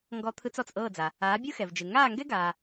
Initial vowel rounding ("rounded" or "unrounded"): rounded